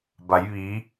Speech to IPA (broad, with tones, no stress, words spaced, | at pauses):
ba˩˧jʋi˩˧